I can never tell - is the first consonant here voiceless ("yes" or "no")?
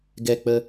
no